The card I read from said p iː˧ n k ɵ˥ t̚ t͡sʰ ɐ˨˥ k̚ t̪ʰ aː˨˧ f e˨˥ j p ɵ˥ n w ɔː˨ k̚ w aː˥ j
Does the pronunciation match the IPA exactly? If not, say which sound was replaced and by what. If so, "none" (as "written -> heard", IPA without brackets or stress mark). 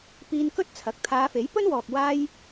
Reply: none